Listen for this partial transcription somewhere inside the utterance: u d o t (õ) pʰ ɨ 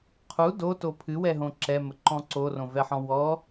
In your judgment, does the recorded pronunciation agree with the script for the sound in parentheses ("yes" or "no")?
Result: no